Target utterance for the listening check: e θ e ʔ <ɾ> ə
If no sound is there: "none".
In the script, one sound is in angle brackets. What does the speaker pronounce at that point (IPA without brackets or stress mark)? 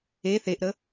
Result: ɾ